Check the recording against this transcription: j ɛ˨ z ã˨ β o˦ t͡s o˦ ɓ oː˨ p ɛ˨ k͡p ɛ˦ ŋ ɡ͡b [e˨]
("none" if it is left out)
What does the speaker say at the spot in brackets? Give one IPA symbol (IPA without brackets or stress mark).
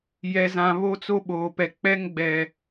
ɛ˨